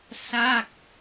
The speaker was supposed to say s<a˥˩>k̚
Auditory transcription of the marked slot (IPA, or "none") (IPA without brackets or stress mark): a˥˩